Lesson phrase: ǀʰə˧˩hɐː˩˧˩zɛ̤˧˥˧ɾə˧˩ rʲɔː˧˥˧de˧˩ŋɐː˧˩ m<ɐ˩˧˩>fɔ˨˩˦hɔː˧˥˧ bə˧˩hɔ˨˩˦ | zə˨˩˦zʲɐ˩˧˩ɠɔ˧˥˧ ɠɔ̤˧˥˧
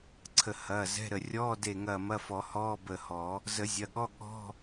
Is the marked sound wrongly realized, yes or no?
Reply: yes